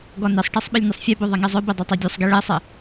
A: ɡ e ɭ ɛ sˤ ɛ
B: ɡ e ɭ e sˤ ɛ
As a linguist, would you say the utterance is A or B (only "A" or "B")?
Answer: A